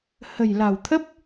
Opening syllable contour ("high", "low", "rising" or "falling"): low